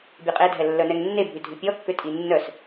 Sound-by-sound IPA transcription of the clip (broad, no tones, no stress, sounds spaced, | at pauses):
bʲ œ qʼ e dʱ ɛ lː œ n ɛ ŋ nː e bʱ y dʱ ʉ pʲ ɔ kː ø tʼ i nː œ s